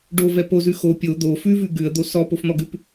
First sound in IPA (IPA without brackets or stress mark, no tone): ɖ